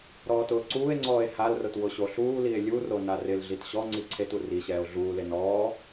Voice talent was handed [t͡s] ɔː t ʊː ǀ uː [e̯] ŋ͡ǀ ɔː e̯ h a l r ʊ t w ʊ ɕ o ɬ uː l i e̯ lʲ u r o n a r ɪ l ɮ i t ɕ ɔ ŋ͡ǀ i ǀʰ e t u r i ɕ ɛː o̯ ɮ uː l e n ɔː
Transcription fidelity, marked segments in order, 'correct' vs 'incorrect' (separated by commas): incorrect, correct